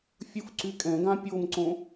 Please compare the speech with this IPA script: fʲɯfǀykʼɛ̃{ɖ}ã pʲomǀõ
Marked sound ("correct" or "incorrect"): incorrect